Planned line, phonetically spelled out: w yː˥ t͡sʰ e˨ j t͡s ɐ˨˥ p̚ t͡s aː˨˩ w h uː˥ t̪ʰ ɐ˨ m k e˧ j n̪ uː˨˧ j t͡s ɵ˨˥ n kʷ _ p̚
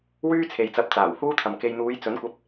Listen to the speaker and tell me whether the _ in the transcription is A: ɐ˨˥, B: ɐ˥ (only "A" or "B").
A